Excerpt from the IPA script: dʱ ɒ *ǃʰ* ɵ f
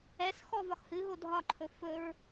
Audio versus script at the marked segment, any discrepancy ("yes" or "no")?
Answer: no